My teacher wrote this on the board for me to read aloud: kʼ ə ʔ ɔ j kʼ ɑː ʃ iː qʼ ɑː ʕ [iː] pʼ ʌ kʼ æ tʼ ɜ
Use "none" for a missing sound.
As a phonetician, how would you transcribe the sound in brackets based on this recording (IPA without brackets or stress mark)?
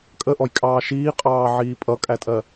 iː